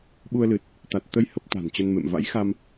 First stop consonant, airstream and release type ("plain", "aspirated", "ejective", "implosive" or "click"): implosive